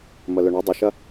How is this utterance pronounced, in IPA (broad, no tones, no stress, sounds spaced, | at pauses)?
m ə l ʏ ɳ ɐ dˤ ɪ ʃ ɐ